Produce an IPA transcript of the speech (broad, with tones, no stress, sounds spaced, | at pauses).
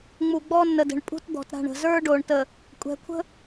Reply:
ŋ͡m u˨ ɡ͡b ɔ˦ nː ə˨ d ə̤˨ ɳ pʼ ṳ˦ t d̪ ɔ̤˨ t ɾ a̤˨ ɳ ə̤˨ z ə˞˦ ɖ o˨ ɳ t ə˨ | kʷʼ ɛ̤˨ kʷʰ ə̤˦